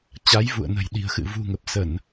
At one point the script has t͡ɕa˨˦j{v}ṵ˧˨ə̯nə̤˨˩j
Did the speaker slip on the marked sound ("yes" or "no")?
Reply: no